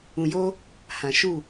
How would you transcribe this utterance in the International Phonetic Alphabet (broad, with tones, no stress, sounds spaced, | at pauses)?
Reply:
ũ˨ j o˦ | h ã˨ ʃ u˦˨